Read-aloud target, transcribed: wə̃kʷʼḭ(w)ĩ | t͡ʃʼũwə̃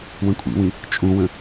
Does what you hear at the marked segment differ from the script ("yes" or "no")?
no